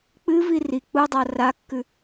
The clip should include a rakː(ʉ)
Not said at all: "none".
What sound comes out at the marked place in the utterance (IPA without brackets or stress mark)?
ʉ